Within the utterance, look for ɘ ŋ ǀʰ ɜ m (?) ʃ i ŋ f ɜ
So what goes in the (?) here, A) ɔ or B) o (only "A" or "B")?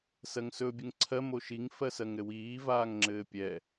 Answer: B